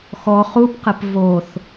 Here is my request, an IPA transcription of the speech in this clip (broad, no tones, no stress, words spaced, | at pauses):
xɔ χupqɛp voθ